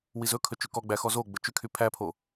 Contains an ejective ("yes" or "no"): no